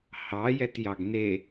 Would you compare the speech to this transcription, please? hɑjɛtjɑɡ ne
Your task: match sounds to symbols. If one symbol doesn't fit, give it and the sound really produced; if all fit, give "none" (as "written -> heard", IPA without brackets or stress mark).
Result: none